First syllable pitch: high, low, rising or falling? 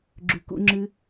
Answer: low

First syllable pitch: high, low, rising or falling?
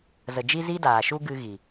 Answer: low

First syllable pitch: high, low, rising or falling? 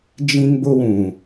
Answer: high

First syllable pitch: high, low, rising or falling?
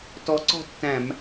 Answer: rising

